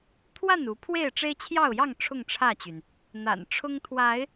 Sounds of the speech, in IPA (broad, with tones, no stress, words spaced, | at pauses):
t̪ʰwa˥˨nu˨˦ pʰwe˥˨ɪ̯ʈ͡ʂe˦ɪ̯t͡ɕʰjɑ˥˨ʊ̯jɑ˥˨ŋ ʈ͡ʂʰʊ˥˨ŋʈ͡ʂʰä˥˨t͡ɕy˩n | n̪a̰˨˩nʈ͡ʂʰʊ˦ŋt̪ʰwa˨˦ɪ̯